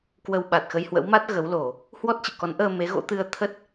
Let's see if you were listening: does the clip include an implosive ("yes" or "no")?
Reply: yes